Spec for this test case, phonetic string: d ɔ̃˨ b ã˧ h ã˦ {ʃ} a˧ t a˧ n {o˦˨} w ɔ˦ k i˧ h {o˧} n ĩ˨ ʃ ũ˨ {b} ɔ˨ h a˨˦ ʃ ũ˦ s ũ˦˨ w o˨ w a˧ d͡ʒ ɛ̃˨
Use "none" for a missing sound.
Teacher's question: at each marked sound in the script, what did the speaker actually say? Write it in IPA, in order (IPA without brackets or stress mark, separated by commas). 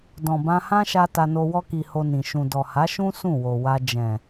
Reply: ʃ, o˧, o˧, d